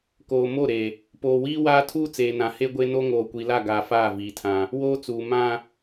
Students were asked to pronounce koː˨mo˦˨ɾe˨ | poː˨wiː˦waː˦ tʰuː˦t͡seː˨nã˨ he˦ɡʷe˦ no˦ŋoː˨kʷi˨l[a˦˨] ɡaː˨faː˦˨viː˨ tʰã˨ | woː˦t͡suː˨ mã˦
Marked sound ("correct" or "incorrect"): correct